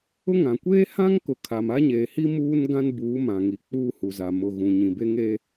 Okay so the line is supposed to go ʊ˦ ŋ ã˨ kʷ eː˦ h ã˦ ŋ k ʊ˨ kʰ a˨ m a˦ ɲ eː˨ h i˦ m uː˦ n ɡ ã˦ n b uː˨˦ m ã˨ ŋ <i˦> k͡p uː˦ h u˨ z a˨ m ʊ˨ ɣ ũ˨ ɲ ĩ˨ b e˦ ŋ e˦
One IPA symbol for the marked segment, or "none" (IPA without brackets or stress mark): i˨˦